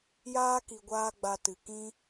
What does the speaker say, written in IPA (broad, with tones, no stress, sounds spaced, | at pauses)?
j aː˦ k i˨ ɡʷ aː˧ ɡ͡b a˧ t ɨ˨ k ĩ˦